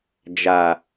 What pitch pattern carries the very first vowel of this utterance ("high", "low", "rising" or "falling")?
low